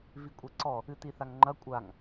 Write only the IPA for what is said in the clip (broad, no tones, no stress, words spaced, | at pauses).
vikʷʼeǀɔ | ɨtiθaŋŋ͡ǃɐ kʷʼaŋ